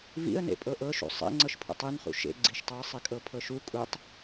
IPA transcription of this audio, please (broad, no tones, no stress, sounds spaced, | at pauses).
v ḭ ə̯ n ḛ pʼ ɤ ʔ ɤ ʃ ṵ sˤ ḛ ŋ͡ǀ ɤ ʃ pʰ ṵ tˤ i n χ ṵ ʃ ḛ ɡ͡ǀ i ʃ tˤ u ə̯ sˤ i kʼ ɤ pʰ ɤ ʃ u kʼ u tˤ